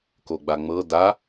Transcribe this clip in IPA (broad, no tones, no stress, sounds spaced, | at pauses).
k o ɡ͡b a ŋ͡m ɤ d a